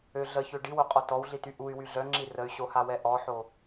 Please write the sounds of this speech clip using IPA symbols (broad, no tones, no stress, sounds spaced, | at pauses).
ø ɮ ə ç ø ɖ i w o qʼ ɔ t ɔ w ɮ i t y ʔ u y̯ w y ɮ œ ŋ͡ǁ i r ə y̯ ɕ o h a w ɛ ʔ ɔ ħ o